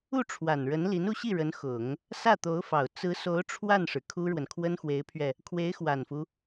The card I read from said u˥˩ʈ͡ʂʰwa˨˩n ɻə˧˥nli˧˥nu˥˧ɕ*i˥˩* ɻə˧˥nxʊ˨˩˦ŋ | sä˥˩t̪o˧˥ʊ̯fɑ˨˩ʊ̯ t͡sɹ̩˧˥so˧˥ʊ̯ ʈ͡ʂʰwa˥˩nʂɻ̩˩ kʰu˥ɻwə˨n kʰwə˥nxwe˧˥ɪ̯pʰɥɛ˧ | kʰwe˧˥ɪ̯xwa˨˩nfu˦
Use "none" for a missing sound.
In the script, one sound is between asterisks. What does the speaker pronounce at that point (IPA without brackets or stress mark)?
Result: i˥˩